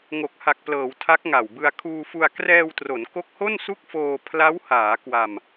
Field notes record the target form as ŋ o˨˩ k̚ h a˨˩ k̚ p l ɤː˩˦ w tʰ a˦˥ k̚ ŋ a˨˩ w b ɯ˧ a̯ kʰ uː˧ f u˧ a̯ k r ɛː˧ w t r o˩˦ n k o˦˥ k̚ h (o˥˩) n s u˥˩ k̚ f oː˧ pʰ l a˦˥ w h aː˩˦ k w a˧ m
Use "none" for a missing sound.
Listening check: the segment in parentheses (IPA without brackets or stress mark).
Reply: o˥˩